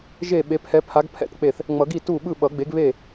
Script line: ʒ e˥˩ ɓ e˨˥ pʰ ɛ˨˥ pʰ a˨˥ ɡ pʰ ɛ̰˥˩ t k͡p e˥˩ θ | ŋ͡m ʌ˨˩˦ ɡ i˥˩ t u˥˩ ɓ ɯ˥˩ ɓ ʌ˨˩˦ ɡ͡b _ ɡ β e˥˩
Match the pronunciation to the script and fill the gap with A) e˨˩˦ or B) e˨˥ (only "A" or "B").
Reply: B